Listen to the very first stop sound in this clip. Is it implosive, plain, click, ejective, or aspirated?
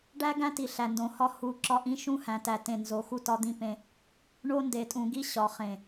plain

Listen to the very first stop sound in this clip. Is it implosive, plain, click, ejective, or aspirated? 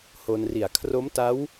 aspirated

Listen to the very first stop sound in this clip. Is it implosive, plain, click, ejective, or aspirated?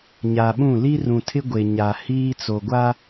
implosive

